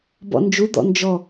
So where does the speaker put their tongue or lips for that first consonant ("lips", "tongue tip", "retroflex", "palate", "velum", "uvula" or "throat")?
lips